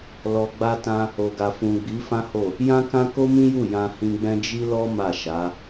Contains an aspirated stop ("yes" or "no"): no